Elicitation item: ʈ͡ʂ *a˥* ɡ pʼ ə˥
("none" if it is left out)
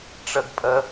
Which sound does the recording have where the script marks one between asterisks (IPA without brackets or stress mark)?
ə˥